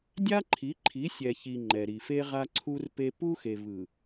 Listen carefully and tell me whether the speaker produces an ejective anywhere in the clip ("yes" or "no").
no